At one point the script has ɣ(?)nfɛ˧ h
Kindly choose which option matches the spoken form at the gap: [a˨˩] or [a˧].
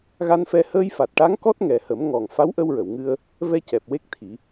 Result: a˧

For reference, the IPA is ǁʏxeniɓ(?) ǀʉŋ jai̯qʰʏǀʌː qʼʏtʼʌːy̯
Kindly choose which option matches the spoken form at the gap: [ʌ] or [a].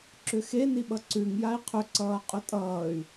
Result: ʌ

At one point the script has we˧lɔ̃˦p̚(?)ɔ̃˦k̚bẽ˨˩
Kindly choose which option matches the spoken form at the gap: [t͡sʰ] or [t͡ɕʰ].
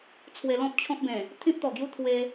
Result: t͡ɕʰ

